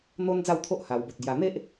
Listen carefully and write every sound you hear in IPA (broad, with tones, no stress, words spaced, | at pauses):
n̪o˦n d͡za˥˧wt̪ʰo˦ʔha˨˩wbo˨t̚ ɡja˨˩n̪e˦ʔ